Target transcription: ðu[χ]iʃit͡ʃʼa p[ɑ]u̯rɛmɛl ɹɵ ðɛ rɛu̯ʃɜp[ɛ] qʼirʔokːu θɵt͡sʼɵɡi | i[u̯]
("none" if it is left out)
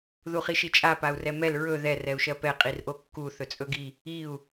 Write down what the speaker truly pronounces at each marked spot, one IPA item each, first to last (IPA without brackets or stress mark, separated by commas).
χ, a, ɛ, u̯